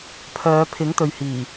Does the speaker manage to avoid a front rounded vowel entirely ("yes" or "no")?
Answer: no